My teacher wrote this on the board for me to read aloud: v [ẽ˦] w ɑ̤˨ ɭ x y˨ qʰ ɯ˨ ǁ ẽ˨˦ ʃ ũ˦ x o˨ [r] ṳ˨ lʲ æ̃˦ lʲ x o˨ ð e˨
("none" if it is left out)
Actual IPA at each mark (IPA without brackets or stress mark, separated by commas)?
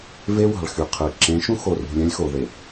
e˦, r